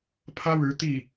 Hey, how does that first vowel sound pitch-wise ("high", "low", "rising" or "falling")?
high